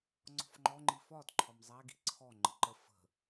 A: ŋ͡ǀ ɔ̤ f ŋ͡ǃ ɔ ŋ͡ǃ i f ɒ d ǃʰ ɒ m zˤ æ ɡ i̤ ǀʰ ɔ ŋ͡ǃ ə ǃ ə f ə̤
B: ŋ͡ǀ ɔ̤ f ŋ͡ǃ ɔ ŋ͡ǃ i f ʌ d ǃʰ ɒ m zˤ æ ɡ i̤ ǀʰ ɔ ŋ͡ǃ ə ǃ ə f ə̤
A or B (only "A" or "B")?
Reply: A